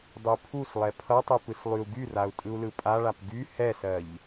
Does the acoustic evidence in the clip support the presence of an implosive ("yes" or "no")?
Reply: no